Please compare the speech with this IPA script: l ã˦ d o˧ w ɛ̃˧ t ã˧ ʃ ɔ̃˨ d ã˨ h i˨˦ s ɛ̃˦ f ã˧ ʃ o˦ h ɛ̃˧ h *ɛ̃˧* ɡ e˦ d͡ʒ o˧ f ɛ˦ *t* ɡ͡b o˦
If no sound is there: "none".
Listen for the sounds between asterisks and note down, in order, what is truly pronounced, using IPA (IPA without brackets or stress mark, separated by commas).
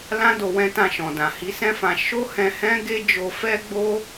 ɛ̃˦, none